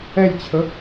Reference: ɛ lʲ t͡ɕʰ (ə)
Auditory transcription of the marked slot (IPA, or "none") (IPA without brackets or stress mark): ə